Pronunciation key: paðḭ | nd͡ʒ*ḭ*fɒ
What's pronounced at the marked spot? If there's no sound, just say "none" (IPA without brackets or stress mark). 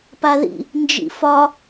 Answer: ḭ